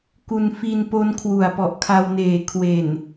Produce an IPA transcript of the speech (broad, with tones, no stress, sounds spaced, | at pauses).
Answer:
k u˧ n f i˧ n p o˦˥ n kʰ w u˨˩ a̯ p ɔ˨˩ ʔ kʰ a˧ w n eː˨˩ kʰ w e˨˩ n